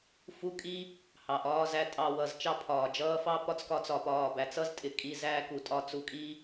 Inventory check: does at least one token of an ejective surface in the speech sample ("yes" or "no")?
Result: yes